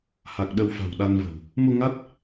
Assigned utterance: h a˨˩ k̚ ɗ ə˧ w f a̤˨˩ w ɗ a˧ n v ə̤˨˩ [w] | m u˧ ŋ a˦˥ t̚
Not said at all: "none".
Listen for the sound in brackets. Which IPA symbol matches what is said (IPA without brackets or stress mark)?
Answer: w